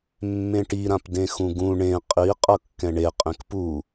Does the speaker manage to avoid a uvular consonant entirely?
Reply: no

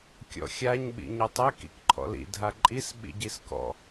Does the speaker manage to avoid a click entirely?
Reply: no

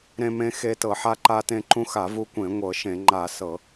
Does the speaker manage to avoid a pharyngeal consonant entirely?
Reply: no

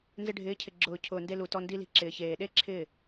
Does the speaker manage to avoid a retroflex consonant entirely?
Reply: no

